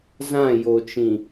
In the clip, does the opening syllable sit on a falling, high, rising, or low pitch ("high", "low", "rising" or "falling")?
falling